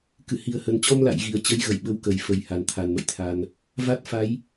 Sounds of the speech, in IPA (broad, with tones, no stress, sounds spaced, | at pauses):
k ɨ˧˩ h i˨˩ ə̯ h ə˨˩ n t͡ɕ ɔ˧ m l a̰˧˨ j ɣ i˨˩ ə̯ t͡ɕ ə˨˦ j ɣ ə˧˩ j ɓ ə˨˦ w k ə˨˩ j f ə˨˩ j h a˨˩ n t̪ʰ a˨˩ n m ə̰˧˨ j t̪ʰ a˧ n | v a˦˥ t̚ f a˨˦ j